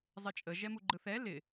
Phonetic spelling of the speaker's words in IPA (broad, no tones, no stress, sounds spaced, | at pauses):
zˤ ɪ t͡ʃʼ ə ʒ ɛ m u ɡ͡ǃ ɯ θ ɛ l ɪ